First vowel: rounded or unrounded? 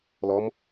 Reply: rounded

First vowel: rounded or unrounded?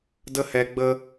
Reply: unrounded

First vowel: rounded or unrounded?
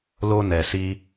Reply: rounded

